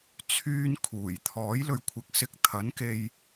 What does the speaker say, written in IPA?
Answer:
t͡sʰ yː˧ n kʰ uː˨˩ j t̪ʰ ɔː˨˥ j l ɵ˨˧ ɥ kʷʰ ɪ˨ k̚ s ɪ˧ k̚ t̪ʰ ɐ˨˥ n k e˧ j

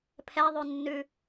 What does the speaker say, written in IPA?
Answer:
pʰ ɛ ðˤ ʉ nː ʉ

